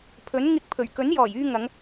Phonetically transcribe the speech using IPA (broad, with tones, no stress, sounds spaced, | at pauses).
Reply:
pʰ ɵ˨˥ n ŋ ɪ˧ k̚ pʰ ɵ˨˩ ɥ k ɵ˨˥ n j ɔː˨˩ j yː˧ ŋ ɐ˨˧ ŋ